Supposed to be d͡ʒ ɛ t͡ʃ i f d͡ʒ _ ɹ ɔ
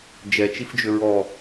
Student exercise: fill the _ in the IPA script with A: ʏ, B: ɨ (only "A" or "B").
A